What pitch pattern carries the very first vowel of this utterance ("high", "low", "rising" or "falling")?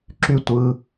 falling